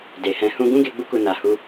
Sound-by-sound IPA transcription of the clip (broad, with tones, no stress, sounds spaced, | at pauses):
d e˨ h ɛ̃˧ h ũ˦ ɡ ũ˦ ɡ e˧ ɡ͡b u˧ k u˨ n a˨ h u˧